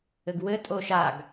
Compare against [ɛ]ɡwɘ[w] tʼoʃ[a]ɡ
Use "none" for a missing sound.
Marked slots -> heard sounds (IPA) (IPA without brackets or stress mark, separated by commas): ɘ, none, a